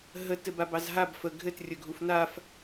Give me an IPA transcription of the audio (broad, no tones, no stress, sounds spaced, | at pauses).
ɦ ə t ɘ b a b ɑ z ɦ a b f ə ɡʱ ɘ t rʲ ə ɡʱ u f n a f